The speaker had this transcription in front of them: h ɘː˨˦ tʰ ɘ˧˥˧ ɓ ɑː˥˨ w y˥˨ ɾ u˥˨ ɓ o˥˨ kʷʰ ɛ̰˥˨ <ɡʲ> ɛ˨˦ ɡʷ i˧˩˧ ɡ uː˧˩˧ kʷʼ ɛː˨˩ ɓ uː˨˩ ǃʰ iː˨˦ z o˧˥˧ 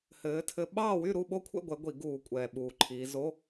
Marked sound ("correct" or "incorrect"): incorrect